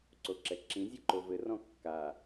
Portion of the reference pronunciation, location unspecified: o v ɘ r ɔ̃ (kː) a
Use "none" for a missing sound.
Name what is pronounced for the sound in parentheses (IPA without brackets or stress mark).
kː